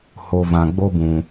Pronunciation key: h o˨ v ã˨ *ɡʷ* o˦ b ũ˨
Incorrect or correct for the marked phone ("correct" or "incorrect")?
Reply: incorrect